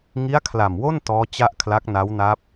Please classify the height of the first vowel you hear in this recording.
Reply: high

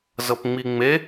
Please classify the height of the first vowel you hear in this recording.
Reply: mid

